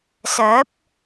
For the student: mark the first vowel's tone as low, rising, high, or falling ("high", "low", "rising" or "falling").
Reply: rising